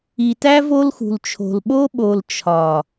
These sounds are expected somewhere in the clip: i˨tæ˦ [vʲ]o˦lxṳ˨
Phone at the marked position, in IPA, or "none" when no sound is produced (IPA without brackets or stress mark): v